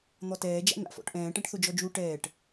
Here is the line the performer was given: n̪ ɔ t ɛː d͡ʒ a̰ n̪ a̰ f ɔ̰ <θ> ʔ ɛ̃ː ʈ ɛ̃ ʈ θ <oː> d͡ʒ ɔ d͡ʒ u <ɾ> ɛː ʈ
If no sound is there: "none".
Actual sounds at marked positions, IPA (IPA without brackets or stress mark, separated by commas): ʈ, o, ʈ